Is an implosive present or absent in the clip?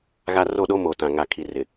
present